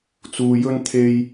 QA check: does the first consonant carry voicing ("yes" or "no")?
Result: no